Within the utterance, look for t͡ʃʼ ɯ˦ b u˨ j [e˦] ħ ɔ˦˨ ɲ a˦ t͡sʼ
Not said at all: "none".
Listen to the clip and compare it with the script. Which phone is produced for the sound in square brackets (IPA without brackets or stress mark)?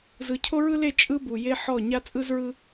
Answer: e˦